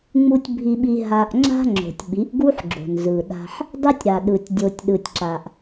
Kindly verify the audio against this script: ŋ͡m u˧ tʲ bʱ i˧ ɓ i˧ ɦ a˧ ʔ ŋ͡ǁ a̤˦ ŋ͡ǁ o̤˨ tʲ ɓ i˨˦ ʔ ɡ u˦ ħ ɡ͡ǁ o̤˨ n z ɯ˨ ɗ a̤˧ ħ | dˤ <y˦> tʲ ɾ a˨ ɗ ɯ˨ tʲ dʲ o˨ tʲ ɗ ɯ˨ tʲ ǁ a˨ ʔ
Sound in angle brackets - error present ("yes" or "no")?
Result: yes